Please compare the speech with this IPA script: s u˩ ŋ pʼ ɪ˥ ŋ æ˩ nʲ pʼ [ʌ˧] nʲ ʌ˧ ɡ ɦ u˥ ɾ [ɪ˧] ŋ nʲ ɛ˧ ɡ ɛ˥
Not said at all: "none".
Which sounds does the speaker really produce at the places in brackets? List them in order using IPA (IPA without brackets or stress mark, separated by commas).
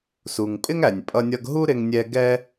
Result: ʌ˧, ɪ˧